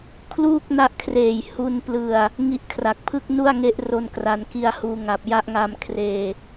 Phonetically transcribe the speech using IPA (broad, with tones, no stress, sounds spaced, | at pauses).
kʰ l uː˥˩ k̚ n a˦˥ ʔ kʰ r eː˨˩ j h u˧ n p l ɯ˨˩ a̯ | ŋ i˦˥ ʔ kʰ r a˨˩ k̚ pʰ ɯ˥˩ k̚ n u˥˩ a̯ ŋ e˦˥ ʔ r o˧ n k r a˩˦ n k i˧ a̯ h uː˧ ŋ a˨˩ p̚ j a˥˩ ʔ ŋ a˧ m kʰ r eː˨˩